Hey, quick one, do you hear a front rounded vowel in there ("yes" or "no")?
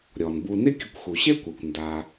no